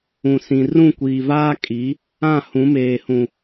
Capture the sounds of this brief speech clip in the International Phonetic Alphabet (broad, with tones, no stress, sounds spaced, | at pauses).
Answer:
ũ˨ s ĩ˨ r ũ˦˨ kʷ iː˨ v aː˦ kʼ i˨˦ | ã˦˨ h ũ˨˦ m eː˨ h ũ˨